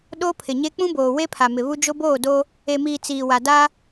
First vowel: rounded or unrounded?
rounded